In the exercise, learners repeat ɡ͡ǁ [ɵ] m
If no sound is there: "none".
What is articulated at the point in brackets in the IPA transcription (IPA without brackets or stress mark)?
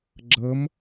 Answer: ɤ